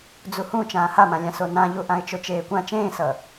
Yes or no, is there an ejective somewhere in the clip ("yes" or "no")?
no